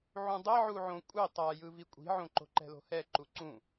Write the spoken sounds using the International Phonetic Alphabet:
ʕ ũ dˤ ɛ ʕ u ʕ õ kʷʼ e tˤ a j ɯ v i kʷʼ i̤ ʕ õ ǃ o̤ ǃ ɛ̤ l o̤ h ɛ ǃ u ǀ ũ

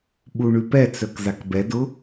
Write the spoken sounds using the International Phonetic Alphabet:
ɓ u ɳ ʉ p ɛ t͡s œ k z a k b ɛ d ʊ

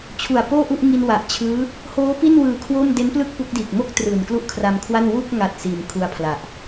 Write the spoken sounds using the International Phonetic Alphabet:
t͡ɕʰ u˨˩ a̯ p oː˥˩ ʔ u˥˩ ʔ ŋ i˧ n w a˨˩ ʔ t͡ɕʰ ɯː˦˥ | h oː˦˥ p i˥˩ n w ɯː˨˩ kʰ w o˥˩ m d e˦˥ n p l ɯ˥˩ k̚ p u˦˥ k̚ d iː˨˩ k̚ m o˥˩ k̚ t r ɯː˨˩ n k l u˥˩ ʔ kʰ r a˧ m kʰ w a˥˩ n w u˥˩ k̚ ŋ a˨˩ t̚ s iː˨˩ m kʰ u˧ a̯ pʰ l a˨˩ ʔ

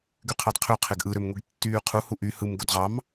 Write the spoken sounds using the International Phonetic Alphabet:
ɡ y qʰ ɑ d qʰ ø qʰ e ɡ ʔ ɯ ɾ ø m ŋʷ i ɡ tː yː qʰ u h u ʔ y h ɯ m ɡ o d ʁ ɑ m

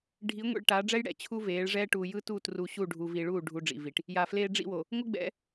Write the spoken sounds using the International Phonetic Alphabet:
ɖʱ i˨˦ ŋʷ ḭ˨ ɭ ʈ aː˨˦ ɖ͡ʐ ɛ˦ j ɽ ɛ̰˨ t͡ɕʰ u˦ v eː˨˦ ɭ ʐ ɛː˦ ʈ uː˨ j ɯ˦ t uː˦˨ t r u˨ ɕ u˦˨ ɖʱ u˨ v i˨ ɭ uː˦˨ ɖʱ u˦ ɖ͡ʐ ḭ˨ v i˨ ʈ | j a˨ f l eː˦ ɖ͡ʐ ḭ˦˨ w o˨ | ŋʷ ɯ˦ ɡ͡b ɛ̰˨˦

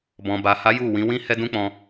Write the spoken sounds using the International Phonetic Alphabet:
b ɔ̃˨ b a˨ h a˨˦ j u˦˨ w ĩ˨˦ w ĩ˦ h ɛ˦ d ũ˦ k͡p ɔ̃˧

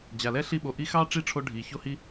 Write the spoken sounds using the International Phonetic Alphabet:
d͡ʑ a˨ l ɛ˥ ɬ i˦ ɓ o˨ ʔ i˥ x ɑ˥ ʈ͡ʂ i˥ ʈ͡ʂʰ o˦ ɖʱ i˨ ç o˥ h i˥

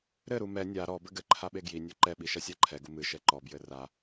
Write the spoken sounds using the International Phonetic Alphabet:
ɾ ɘ ɾ u m ɛ nʲ a ɾ ɔ b ɘ ɡ ɘ ǃʰ a ɓ e ɡ j i nʲ o ǃ ɛ ɓ i ʃ ɐ sʲ a ǃʰ ɛ ɡ u m ɨ ʃ ɛ ǃ ɔ b j ɘ r a

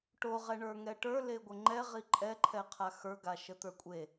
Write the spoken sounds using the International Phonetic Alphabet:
ʈ o ʁ ɛ ɳ ə˞ ŋ ɛ ʈ ə˞ l e ɡʷ ə ŋ͡ǃ ɛ ʁ i ǃʼ ɛ ǃʰ ɛ qʰ a x ə˞ ɡ a ʃ ə t̪ ə˞ kʷʼ e

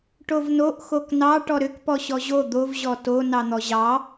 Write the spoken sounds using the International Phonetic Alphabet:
ʈ o v n o ʔ x o k n ɑ ʈ ɔ ɾ ʏ k p ɔ ɕ ɔ ʑ o d̪ o v ʑ ɔ t o n ɑ n̪ ɔ ʑ ɑ

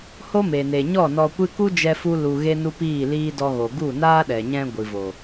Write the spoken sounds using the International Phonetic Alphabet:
h o˦ m e˨ n e˨ ɲ ɔ˦˨ n ɔ˧ kʷ ɨ˦ k u˦ d͡ʒ ɛ˧ f u˦ l u˧ ɣ e˦ n u˦ p iː˦˨ l iː˦ d ɔ˧ ɣ o˨ ɡ u˦˨ n aː˦ ɗ ɛ˨ ɲ ɛ̃˧ ɡʷ ɨ˨ v o˨

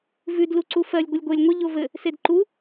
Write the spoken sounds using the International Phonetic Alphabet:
v ʉ d l u ǀ u f ɜ lʲ ɡʷ ɘ lʲ ɡʷ e lʲ ŋʷ ɪ ʎ o v ɘ | s e d ǃ u

